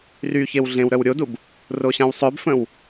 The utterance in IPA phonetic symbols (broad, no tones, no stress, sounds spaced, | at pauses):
r y ç e w ɮ ẽ w ɾ œ w ɾʲ o d u b | r o ɕ ã w sˤ œ b f ə̃ w